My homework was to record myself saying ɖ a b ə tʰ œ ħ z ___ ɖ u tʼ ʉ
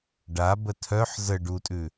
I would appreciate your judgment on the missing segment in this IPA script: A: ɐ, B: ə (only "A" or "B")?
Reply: B